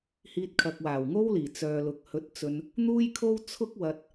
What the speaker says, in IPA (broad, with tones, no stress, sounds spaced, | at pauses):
h iː˧ t̚ kʰ ɐ˨ k̚ w aː˨˩ w ŋ o˥ w l iː˨˩ t͡s œː˨ l ʊ˨ k̚ h ɵ˧ t̚ t͡s ɵ˧ n | n̪ uː˥ j kʰ o˥ w t͡sʰ ʊ˥ k̚ w ɐ˧ t̚